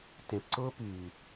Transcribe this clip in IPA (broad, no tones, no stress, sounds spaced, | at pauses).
t ẽ p ǀ ʊː p yː